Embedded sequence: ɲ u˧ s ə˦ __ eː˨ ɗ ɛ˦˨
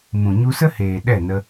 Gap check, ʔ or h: h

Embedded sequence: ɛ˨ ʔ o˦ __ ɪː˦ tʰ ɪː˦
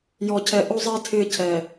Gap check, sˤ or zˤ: zˤ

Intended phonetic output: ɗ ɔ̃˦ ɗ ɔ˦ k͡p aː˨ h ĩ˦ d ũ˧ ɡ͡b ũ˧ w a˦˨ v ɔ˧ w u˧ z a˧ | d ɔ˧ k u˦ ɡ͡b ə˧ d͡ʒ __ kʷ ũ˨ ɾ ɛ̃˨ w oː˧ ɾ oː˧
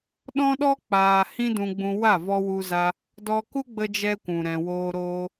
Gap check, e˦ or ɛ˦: ɛ˦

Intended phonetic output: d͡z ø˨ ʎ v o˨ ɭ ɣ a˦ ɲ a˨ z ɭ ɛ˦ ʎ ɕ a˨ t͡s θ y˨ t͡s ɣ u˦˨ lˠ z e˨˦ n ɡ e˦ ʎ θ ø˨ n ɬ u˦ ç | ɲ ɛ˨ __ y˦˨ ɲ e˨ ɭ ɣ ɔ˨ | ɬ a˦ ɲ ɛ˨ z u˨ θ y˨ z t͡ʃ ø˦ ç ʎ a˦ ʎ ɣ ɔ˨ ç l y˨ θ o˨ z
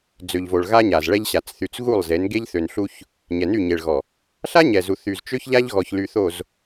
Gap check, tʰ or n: n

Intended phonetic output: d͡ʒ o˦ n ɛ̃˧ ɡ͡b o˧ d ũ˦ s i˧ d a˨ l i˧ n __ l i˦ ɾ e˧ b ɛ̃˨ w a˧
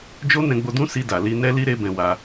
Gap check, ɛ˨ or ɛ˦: ɛ˦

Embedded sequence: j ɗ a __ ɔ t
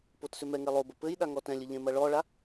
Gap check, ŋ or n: ŋ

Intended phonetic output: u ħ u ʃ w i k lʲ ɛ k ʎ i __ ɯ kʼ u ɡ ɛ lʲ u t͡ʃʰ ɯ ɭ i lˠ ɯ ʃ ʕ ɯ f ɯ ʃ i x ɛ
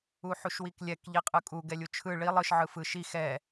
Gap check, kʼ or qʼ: qʼ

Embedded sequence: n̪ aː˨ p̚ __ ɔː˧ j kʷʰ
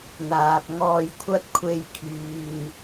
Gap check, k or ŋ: ŋ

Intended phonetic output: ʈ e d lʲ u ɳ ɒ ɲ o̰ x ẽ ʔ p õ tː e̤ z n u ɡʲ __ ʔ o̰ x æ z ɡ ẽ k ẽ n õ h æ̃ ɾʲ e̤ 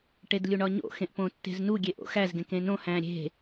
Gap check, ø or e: e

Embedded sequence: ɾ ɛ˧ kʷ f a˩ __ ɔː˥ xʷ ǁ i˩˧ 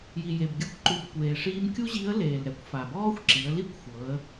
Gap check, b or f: b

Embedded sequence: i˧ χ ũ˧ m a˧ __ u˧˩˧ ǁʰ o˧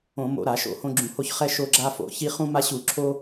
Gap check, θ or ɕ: ɕ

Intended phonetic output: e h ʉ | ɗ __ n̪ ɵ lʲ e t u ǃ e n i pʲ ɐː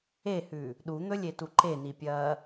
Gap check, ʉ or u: u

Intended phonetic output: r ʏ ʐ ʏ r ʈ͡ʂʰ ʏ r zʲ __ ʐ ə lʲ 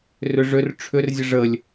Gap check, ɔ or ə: ə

